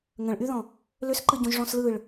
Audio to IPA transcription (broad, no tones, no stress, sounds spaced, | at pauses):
ŋ ə̃ ɭ ʔ y ð ɔ̃ | l ʏ s ǃ ɯ ɟ õ ʒ ʐ ɔ̃ s l ɯ ɭ